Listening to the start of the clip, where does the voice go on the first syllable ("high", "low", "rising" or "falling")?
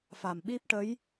low